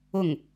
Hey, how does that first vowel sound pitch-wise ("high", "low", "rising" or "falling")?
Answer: falling